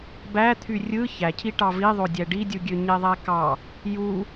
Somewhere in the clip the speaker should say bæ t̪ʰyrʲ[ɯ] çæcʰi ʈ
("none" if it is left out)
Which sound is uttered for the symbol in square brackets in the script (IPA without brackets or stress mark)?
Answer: ɯ